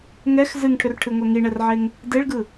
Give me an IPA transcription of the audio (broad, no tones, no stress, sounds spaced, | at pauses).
ŋ ɛ x z ɨ ŋ ʈʰ ʏ r ʈʰ ɨ ŋʷ ɛ ŋ i ɳ ɛ r ʕ e ŋ | d e ɭ ɡ ɯ